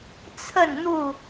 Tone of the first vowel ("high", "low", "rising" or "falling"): falling